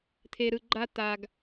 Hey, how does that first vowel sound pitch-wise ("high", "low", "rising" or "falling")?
low